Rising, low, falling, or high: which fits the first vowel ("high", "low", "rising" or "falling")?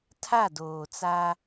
falling